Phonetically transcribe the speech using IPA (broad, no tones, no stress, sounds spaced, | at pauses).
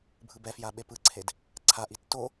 bʱ ɯ b ɛ f j a ɓ e p ɯ ǀʰ e d | ǀʰ a ʔ i tː o